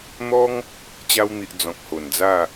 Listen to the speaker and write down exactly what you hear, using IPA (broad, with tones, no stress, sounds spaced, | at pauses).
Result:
n̪ ɔ˦ ŋ | t͡ɕ a˧ w n̪ i˨ ʔ d͡z ɔ̃˨ k̚ h o˨˩ n d͡z a˥˧